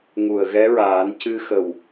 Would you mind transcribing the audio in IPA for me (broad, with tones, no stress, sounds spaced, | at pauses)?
ŋ u˨˩ ə̯ ɣ ɛ˧˥ ɹ aː˨˩˦ n c ɨ˧ x ə˨˩ w